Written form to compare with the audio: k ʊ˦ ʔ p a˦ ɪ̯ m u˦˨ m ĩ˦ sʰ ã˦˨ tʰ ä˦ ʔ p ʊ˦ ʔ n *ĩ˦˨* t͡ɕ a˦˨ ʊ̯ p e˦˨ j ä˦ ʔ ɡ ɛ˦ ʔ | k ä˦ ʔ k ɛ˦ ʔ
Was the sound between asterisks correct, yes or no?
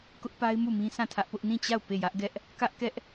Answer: yes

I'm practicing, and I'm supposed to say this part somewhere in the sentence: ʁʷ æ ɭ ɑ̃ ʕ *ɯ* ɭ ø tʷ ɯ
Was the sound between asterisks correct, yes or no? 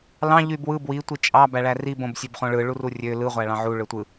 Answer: no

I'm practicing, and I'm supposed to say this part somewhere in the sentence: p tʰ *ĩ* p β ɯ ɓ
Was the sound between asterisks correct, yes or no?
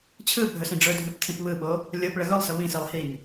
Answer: yes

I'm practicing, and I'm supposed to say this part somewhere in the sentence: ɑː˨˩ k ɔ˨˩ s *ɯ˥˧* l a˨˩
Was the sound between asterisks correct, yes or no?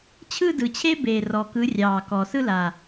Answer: yes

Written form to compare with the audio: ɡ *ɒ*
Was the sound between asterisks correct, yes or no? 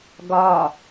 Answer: yes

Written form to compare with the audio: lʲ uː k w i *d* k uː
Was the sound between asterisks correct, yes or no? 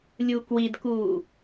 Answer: yes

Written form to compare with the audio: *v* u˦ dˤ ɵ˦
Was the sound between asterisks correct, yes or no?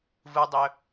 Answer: yes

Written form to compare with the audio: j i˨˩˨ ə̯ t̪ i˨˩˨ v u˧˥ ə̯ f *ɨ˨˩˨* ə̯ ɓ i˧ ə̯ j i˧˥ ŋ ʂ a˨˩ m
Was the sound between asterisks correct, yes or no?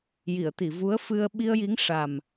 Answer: no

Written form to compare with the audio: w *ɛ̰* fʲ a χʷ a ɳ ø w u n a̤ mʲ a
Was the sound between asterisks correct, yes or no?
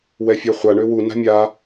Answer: no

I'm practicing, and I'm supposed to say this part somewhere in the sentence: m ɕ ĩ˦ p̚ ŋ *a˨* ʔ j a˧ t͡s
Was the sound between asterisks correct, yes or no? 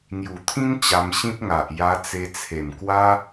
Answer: yes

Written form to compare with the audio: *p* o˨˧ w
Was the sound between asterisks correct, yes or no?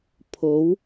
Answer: no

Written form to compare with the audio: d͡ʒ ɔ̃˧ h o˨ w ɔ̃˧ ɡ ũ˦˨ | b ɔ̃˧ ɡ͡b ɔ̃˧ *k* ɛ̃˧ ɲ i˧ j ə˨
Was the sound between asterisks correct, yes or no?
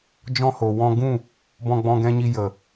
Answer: no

